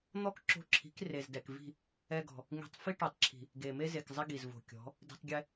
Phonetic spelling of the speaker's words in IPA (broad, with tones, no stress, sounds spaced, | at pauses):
n̪ ɔ˦ k ǁ o̤˧ ǁʰ i̤˨˦ k r e˨ z d ɛ˨ k v i̤˦˨ | ɛ˦ ɡ ɔ̤˨ | ŋ i̤˧ tˤ f i˦ ʈ o˨ tˤ ǁʰ i̤˨ | ɡ e˨ m e˦ z e˨ k zˤ ɪ˦ ɡ i˨ z v o̤˨ kʲ ɔ̤˨˦ | d i̤˧ tˤ ɡʲ ɛ˦